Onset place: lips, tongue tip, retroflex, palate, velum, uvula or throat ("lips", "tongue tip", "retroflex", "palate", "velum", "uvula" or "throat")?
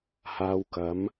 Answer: throat